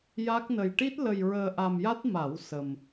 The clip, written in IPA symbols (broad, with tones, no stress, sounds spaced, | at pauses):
j a˦˥ k̚ n ə˧ j ʈ i˦˥ t̚ l ə˧ j ɹ əː˧ ʔ a˧ m j a˦˥ t̚ m a˨˩˦ w s ə˧ m